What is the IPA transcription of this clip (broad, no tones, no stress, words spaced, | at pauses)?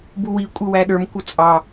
buwi kʷʼɪwæɗə˞m kʷʌt͡sʼɑ